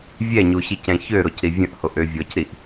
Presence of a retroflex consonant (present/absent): absent